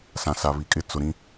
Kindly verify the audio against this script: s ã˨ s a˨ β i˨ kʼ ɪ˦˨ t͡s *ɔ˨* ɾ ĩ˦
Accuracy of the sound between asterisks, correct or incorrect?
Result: incorrect